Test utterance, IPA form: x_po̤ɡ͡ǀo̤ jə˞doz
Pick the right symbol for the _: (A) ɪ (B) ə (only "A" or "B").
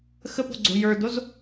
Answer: B